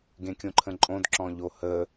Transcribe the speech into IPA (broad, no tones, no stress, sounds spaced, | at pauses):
ɡ ẽ kʲ õ ǃʰ ə̃ ǃʼ õ d ǁ ɔ̃ ʎ o h ə